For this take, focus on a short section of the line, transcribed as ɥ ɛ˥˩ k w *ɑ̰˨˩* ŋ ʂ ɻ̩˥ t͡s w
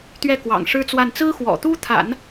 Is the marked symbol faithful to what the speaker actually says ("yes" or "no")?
yes